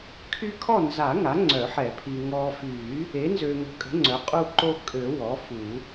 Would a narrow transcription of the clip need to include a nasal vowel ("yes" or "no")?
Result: no